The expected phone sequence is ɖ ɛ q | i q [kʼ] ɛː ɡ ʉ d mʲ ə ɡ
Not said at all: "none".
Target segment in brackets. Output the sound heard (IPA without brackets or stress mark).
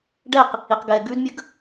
ɡ